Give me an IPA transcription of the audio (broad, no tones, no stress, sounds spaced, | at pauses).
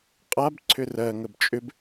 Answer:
qʼ a b ǀʰ ʏ r ɜ ŋ ə b t͡ʃʼ ʏ b